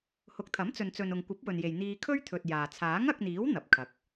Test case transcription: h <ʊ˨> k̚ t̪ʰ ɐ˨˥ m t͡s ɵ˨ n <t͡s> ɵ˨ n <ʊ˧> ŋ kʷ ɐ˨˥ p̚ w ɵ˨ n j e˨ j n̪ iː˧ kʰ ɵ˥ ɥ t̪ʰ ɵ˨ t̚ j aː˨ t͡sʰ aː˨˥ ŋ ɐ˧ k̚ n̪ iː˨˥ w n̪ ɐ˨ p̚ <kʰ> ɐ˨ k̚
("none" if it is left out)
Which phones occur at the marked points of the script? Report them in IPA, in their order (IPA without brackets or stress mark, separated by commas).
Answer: ʊ˨˥, t͡s, ʊ˨, kʰ